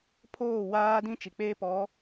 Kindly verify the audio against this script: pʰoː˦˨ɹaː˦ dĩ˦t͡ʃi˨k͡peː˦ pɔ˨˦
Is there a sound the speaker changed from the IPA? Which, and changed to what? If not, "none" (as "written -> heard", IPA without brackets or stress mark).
ɹ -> w